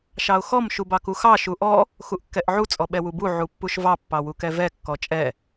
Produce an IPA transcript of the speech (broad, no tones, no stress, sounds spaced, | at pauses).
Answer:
ʃ ɑ ʊ̯ x ɔ m ʃ u b ɑ k u x ɑ ʃ u ʔ ɔ | x u ʔ kː ɛ ʔ ʕ u t͡sʼ ɔ ɓ ɛ w u b u ʕ u pː u ʃ v ɑ pː ɑ w u k ɛ v ɛ kː ɔ t͡ʃʼ ɛ